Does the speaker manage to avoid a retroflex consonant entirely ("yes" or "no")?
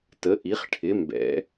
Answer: no